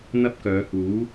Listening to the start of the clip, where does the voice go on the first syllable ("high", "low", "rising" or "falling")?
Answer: high